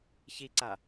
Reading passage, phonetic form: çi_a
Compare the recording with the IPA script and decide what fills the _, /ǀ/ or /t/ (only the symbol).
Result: ǀ